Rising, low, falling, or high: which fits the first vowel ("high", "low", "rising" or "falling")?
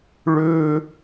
high